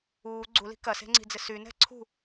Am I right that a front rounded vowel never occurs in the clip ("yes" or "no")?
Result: no